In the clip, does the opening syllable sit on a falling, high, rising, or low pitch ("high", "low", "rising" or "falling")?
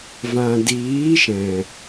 low